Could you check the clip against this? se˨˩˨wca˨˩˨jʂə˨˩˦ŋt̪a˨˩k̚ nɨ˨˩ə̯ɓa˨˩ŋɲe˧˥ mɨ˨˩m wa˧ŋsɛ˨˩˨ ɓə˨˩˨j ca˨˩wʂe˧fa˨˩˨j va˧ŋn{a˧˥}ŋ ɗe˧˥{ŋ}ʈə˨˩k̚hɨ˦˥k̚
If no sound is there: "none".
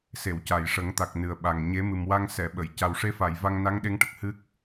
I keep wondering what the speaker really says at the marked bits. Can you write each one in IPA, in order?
a˧˥, ŋ

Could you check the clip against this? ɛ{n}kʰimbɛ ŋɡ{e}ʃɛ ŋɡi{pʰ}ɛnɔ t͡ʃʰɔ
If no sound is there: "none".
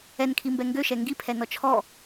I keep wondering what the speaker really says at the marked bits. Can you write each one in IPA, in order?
n, ø, pʰ

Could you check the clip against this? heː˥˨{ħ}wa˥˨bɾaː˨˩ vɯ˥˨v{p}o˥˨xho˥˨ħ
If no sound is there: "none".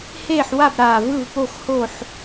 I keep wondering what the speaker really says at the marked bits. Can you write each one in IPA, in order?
ħ, p

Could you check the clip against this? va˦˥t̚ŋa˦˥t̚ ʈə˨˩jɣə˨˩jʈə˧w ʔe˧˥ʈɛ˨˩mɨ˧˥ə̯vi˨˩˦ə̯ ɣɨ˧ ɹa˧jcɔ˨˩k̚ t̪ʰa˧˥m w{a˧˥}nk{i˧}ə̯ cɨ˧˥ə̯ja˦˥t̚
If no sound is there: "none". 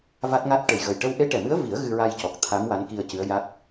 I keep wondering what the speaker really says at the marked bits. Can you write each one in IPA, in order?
a˧˥, i˧

